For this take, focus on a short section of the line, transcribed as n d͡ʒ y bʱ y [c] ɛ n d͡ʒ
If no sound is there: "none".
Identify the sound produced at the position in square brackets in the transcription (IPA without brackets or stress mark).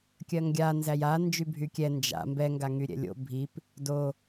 kʲ